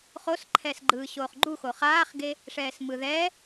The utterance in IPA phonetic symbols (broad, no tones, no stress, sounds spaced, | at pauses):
χ o s ǃʰ ɛː s ɡ͡ǃ ɯː ɕ oː χ ɡ͡ǃ u x o χ aː χ ɡ e | ʂ ɛː s m ɯ ð ɛ